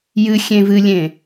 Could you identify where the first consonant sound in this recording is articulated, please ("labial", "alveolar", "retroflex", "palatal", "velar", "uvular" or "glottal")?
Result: palatal